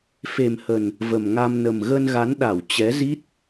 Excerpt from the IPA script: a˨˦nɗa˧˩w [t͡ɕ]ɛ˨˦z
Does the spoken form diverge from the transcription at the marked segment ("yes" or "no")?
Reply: no